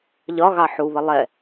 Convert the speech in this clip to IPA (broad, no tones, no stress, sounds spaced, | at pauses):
ʎ ɒ ɣ ɑ ħ u β ə lˠ ɛ